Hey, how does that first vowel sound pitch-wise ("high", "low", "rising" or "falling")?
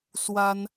high